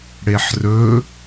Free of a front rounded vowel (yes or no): yes